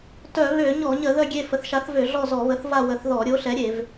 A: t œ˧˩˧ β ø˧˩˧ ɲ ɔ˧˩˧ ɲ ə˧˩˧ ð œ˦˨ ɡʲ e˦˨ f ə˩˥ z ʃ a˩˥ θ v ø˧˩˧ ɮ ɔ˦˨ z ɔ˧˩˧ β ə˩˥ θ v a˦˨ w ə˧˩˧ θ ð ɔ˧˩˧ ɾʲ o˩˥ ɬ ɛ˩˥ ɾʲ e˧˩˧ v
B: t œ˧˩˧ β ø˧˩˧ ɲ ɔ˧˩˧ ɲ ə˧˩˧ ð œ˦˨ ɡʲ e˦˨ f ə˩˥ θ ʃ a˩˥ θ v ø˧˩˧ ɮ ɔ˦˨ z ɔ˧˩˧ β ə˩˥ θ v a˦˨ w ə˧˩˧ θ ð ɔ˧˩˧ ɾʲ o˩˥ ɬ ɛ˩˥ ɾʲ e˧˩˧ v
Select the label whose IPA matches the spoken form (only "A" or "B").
B